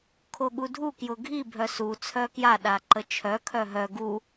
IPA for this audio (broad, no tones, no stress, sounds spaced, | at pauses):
kʰ o ɠ u dʱ u k j ʊ ɡʱ i bʱ œ s u t͡sʰ œ k j a ɗ a ǃ ə t͡ʃʰ œ kʰ œ ɦ œ ɡ u